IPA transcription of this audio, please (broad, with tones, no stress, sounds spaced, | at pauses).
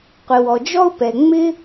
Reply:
qʷ ɪ˩ w ɔ˩ d͡ʒ ɔ˥ ʊ̯ p ɛ˩ ŋ͡m ɪ˥